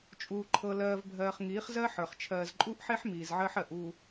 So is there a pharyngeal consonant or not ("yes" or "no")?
yes